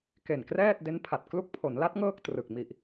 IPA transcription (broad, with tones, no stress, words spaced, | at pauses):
ke˨˩nkrɛː˥˩t̚ de˦˥npʰa˨˩t̚ klu˦˥k̚pʰo˩˦nla˦˥t̚ ŋɤː˥˩k̚trɯ˨˩k̚ mi˨˩ʔ